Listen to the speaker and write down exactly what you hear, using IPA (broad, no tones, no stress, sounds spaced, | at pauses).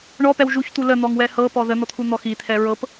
ɳ ɔ p ɛ w ʒ u ç t̪ u l ə n̪ ɔ ŋ w ɛ h ɤ p ɔ ð ə n̪ ɔ t̪ʰ u n̪ ɔ x i t̪ʰ ɛ ɹ ɤ p